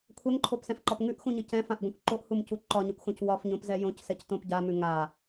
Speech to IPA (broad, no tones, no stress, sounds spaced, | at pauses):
kʷʰ ɛ ŋ ǃʰ o p s ɛ̃ f ǃ ɒ p ŋ ʉ ʔ x ũ ɲ ɘ c ɛ̃ f ã ʔ ɡʷ ɛ̃ kʷ ǃ o ʔ h u m c u ǃ ɒ ɲ ɘ kʷ x õ c w ɒ f ɲ õ p z ɛ j õ c s ɛ c t õ p ɟ a m ʉ ŋ a